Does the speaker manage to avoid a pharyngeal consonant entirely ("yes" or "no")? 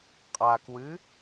yes